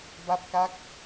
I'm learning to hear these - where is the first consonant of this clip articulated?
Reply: lips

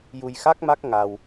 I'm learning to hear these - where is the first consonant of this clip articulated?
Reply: palate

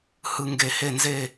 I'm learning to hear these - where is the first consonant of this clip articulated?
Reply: throat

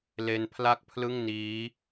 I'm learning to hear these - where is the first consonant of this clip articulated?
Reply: tongue tip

